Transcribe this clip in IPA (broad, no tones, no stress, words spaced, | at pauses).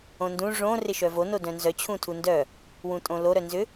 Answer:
õndũ ʐõ rɪʃœvono dœ̃nzœt͡ɕʰũtʰu ndœ | wũtʼõloɾœ nzʏ